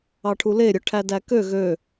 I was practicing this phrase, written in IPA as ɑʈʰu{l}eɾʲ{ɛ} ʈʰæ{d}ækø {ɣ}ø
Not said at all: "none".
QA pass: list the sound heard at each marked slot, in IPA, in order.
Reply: l, œ, d, ɣ

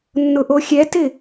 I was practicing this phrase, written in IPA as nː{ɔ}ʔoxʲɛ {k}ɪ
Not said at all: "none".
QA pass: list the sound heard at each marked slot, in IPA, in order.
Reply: ʊ, t

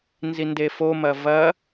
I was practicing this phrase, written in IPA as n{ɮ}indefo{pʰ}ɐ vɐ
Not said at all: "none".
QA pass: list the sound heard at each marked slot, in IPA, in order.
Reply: z, m

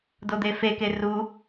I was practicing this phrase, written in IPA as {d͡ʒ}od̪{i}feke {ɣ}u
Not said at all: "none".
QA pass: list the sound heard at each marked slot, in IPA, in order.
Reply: d, e, r

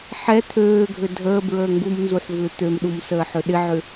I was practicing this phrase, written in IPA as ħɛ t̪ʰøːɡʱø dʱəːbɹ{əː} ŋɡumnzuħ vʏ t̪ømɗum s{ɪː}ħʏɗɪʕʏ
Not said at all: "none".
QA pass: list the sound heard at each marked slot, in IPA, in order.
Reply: əː, əː

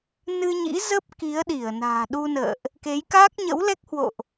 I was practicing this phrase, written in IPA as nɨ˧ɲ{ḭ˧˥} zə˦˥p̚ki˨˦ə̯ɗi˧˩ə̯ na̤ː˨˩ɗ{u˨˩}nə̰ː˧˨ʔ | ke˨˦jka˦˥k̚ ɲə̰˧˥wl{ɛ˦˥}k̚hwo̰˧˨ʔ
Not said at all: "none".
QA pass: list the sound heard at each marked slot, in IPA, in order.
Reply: ḭ˧˥, u˧, ɛ˦˥

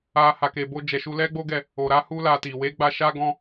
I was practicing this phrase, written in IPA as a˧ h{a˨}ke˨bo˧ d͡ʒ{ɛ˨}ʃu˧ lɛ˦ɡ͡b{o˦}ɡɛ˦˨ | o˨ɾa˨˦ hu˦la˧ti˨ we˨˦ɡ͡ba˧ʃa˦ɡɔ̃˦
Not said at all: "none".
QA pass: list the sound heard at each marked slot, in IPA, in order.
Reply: a˨, ɛ˨, o˦

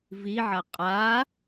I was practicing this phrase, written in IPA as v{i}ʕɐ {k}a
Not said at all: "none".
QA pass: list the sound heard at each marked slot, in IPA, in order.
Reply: i, qʼ

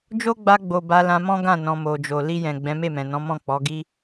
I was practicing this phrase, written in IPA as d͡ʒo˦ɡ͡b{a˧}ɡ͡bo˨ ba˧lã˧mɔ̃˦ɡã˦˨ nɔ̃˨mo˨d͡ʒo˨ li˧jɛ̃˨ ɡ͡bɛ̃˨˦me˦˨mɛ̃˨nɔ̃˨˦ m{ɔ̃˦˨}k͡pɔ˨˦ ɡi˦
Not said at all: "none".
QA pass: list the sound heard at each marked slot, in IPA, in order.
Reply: a˧, ɔ̃˦˨

